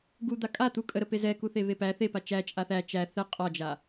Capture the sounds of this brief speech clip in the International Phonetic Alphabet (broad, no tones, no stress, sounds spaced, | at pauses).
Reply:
ɡ u d̪ a kʼ a t̪ u kʼ ə ɾ ə p e z ɛ k u θ e β e p æ θ e p a t͡ʃ æ t͡ʃʼ a θ æ t͡ʃ æ θ ɛ qʼ ɒ d͡ʒ a